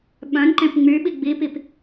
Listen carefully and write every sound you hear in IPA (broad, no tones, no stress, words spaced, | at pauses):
ɓœ̃nǃẽp ŋ͡myɓi ɡ͡bipip